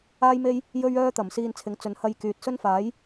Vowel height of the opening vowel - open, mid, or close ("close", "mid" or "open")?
open